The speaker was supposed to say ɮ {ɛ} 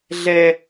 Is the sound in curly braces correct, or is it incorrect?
correct